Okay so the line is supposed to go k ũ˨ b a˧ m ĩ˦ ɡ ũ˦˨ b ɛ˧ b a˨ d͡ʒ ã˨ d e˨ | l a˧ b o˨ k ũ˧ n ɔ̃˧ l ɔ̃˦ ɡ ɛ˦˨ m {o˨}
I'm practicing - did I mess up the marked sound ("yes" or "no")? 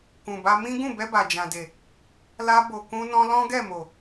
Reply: no